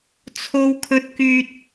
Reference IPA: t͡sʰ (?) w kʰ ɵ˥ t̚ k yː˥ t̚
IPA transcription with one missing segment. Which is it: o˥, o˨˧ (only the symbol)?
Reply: o˥